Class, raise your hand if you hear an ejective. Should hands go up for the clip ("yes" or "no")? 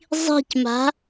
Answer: no